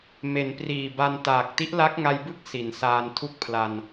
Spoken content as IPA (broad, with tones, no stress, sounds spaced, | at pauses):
m e˩˦ n p r iː˨˩ b a˧ n t aː˨˩ k̚ t i˦˥ ʔ l a˦˥ k̚ ŋ a˧ j b ɯ˥˩ k̚ s i˩˦ n s aː˧ n tʰ u˥˩ k̚ pʰ l a˧ n